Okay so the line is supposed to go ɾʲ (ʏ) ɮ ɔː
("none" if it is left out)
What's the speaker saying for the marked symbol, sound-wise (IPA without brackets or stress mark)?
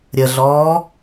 ə